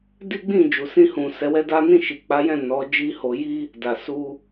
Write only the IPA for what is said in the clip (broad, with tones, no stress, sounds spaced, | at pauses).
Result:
d i˦ ɡ͡b ĩ˦˨ d͡ʒ u˨ s ĩ˧ h ũ˨ s ɛ˨˦ w ɛ˦ d a˦ n ĩ˦˨ ʃ i˨ k͡p a˨˦ j ɛ̃˦˨ n ɔ˨˦ d͡ʒ i˦ h o˧ j i˦ | d a˨ s u˧